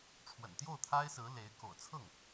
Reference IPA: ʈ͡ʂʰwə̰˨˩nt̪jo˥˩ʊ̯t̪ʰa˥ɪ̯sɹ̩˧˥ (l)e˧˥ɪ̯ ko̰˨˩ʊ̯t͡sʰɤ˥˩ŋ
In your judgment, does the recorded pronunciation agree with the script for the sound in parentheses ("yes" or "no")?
yes